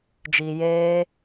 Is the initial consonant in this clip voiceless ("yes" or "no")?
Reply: no